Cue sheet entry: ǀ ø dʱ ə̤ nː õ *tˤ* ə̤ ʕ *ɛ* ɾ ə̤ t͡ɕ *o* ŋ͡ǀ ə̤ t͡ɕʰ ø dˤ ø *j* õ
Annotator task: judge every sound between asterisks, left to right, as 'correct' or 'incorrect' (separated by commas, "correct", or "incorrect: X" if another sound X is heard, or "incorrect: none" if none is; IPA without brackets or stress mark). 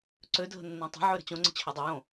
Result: correct, incorrect: ø, incorrect: õ, correct